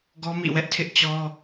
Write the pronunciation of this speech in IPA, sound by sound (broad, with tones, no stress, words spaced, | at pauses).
ɡɔ˦mḭ˦˨wɛ˦ʔ tʰɪ˦ʔt͡ɕɔ˦